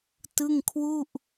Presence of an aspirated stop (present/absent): present